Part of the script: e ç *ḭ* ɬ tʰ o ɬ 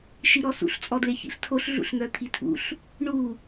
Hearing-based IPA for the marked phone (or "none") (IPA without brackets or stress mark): ḭ